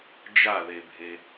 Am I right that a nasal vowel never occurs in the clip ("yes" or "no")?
yes